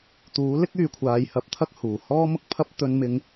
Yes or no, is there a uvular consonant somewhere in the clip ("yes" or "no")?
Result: no